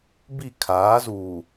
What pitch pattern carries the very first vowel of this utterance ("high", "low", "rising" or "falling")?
falling